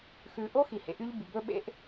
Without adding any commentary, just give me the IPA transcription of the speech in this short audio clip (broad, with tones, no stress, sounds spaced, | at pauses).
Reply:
x ʉ˨ ʔ o˦ x i˨ h ḛ˨ ʔ y˦ ʎ b y˨ b ɵ˦ ɓ ḛ˦ ʔ